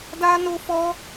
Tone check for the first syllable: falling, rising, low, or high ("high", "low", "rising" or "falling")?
high